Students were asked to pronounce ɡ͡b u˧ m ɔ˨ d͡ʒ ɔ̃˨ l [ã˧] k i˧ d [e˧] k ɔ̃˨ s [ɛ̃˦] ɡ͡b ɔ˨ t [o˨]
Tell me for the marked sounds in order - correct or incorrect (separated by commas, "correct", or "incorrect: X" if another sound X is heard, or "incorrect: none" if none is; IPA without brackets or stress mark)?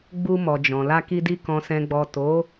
incorrect: a˧, incorrect: i˧, incorrect: ɛ̃˨, incorrect: o˨˦